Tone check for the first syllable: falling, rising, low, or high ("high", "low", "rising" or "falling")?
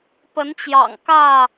rising